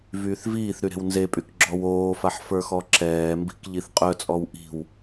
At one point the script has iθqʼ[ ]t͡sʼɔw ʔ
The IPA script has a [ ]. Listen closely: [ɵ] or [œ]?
œ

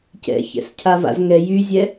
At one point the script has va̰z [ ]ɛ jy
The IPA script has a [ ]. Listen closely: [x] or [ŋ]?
ŋ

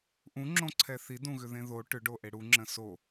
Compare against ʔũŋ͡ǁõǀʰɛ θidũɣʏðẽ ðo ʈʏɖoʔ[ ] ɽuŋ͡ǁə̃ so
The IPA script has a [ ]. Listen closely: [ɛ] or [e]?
e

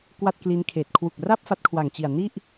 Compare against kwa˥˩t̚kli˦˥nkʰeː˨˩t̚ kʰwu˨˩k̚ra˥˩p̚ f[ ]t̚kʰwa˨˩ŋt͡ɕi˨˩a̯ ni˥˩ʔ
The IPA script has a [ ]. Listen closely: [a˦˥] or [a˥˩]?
a˦˥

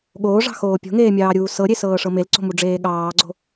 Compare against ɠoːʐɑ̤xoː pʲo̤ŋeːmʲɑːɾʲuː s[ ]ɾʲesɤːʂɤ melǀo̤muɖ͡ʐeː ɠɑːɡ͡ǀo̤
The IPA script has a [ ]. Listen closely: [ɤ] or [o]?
ɤ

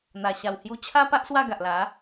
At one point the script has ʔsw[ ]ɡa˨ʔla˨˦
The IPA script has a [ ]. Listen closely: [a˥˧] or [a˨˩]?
a˥˧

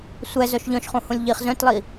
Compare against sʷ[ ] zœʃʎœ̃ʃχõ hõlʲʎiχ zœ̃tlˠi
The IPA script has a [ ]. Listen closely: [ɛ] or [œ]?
ɛ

